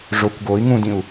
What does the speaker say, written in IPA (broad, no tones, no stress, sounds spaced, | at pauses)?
ʐ o kʷ ɡ o i̯ ŋ ũ d ĩ u̯